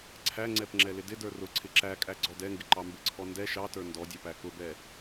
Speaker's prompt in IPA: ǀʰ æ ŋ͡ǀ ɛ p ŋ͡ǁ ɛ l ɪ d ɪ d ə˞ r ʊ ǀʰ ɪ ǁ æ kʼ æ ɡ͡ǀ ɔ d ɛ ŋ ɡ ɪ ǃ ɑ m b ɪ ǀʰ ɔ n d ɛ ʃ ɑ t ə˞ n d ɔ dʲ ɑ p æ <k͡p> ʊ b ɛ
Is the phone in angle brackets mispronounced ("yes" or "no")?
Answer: yes